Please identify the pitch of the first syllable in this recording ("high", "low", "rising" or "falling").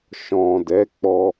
low